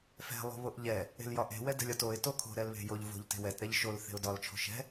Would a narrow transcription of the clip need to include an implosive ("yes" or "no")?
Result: no